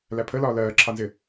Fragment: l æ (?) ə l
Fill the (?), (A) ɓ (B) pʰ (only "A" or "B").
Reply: B